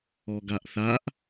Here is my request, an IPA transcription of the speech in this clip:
ɔ ɡ a ʔ θ a ʔ

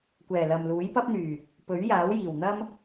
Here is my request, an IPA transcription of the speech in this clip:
kʷ ɛː˨˩ l ɐ˨ m l uː˨˥ j p ɐ˥ p̚ n̪ yː˨˩ | p ɵ˨˥ ɥ j aː˨˥ w j iː˨˩ w n̪ ɐ˥ m

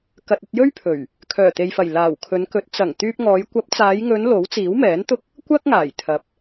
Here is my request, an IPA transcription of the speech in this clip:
k ɐ˨ t̚ ɵ˧ t̚ j ɵ˥ ɥ pʰ ɵ˨˩ ɥ | kʰ œː˨˩ t̪ e˨ j f ɐ˨˩ j l aː˨˩ w kʰ ɵ˨˧ n k ɵ˨˥ t̚ t͡s ɐ˨˩ ŋ t̪ yː˧ p̚ ŋ ɔː˨˧ j kʷ ɐ˨˥ p̚ t͡s aː˨˧ j ŋ ɵ˨˧ n l o˨˥ w t͡s iː˨˥ w m ɛː˨˥ n t̪ ʊ˥ k̚ | kʷ ɐ˥ k̚ ŋ aː˨˩ j t̪ʰ ɐ˨ p̚

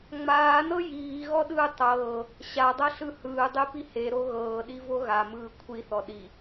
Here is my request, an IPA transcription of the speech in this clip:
ŋ͡m aː n ɤ j iː ɣ ɔ ɗ ɯː tˤ ɤː | ɕ a dˤ ɤ ɬ ɯ h ɯː dˤ e p i h e ɾ o ɣ ɤː ɗ i v o ɣ a m ɯː kʷʰ i θ ɔ ɗ i

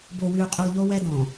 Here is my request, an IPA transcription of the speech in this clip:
b o˨ w y˨ u̯ qʼ y˨ lˠ ʎ o˦ w ɛ˦ d ɔ̃˨

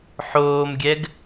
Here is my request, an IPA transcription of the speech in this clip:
ħ oː m ɡʲ ɛ ɡ

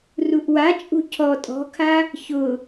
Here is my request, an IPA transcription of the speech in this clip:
r u ʔ w a t͡ʃʼ ṳ cʰ ɔ tʼ ɔ̤ kʰ a | ç ʊ

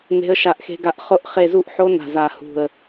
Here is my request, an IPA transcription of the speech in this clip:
n e̤˦˥ ə̯ ʃ a˦˨ ʔ x e̤˦˥ ɡ a˦˥ ʔ χ o˦˥ ʔ χ e˦˨ z u˦˥ ʔ ħ o˦˥ n a̤˦˨ z a˦˨ h ṳ˦˨ ə̯

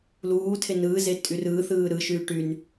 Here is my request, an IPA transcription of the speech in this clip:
l uː tʰ e n ɯː z e tʼ y r ɯː θ ɯː ɾ ɯ ʃ yː ʈ y n

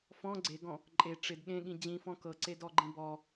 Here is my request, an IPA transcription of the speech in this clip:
f ɔ̃ ɡ͡ǀ e ɡ ɔ̃ | ǃʼ e ʈ͡ʂ ɪ d ɠ ẽ ɠ ĩ d͡ʑ ĩ f ɔ̃ k ɤ ǀ e d ɔ ɡ͡ǃ ĩ b ɔ

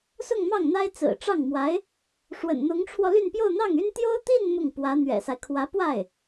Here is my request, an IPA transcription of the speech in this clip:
s ʊ˥˧ ŋ m ɑ˥˩ ŋ n̪ a˥ ɪ̯ t͡s ɹ̩˨˩ ʈ͡ʂ ɑ˥˩ ŋ m w a˧˥ ɪ̯ | ʂ w ə̰˨˩ n n̪ ʊ˧˥ ŋ ʈ͡ʂʰ w ɔ˧ l y˥˧ n p j o˥˧ ʊ̯ n̪ ɑ˥˩ ŋ y˥ n t̪ j o˥ ʊ̯ t̪ i˥˧ n m ʊ˥˩ ŋ p w ä˧˥ n̪ ɥ ɛ̰˨˩ s a˦ ɪ̯ kʰ w ä˧˥ p w a˥˩ ɪ̯

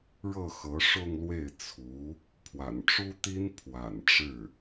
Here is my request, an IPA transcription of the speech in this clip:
ɻ ɤ˥˩ x ɤ˧˥ ʂ ʊ˥˧ ŋ l w e˥˩ ɪ̯ t͡sʰ u˧˥ | pʰ w a̰˨˩ n ʈ͡ʂ u˥ t̪ i˥ n pʰ w a̰˨˩ n ʈ͡ʂ ɻ̩˥˩

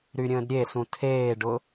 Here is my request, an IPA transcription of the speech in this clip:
ɾ y ɾʲ ə̃ː d ɾʲ e s ũ tʰ eː ɖ ʊ

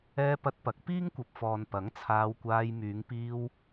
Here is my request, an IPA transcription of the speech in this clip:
ɛː˧ p ɐ˧ t̚ p ɐ˨˥ k̚ p iː˥ ŋ kʷ ɐ˨ p̚ f ɔː˨ n p ɐ˨˥ ŋ t͡sʰ aː˧ w kʷ aː˧ j m yː˨˧ ŋ p iː˧ w

